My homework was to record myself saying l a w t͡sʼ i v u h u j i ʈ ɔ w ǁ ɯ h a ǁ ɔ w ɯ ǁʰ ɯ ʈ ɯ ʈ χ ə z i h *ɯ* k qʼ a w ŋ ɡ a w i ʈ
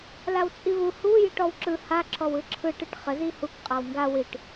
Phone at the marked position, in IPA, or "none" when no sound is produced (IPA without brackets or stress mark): u